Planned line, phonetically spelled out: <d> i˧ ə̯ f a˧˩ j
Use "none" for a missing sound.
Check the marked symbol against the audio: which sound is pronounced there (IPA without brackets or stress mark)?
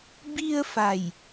b